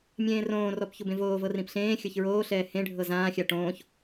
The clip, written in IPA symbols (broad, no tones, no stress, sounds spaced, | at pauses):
mʲ ẽː r õː r ɔ p ç u b ẽ v oː v ɤ r ĩ p ɬ ẽː xʲ ɤ ç ɹ oː ɬ ɛː h ẽ ɖʱ ɤ z ãː xʲ a ʈ õː ç